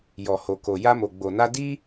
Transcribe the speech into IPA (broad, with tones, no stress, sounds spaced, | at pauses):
j ɔ˨ h o˨ k o˨ j a˧ m o˨ ɡ͡b o˨ n a˧ d i˦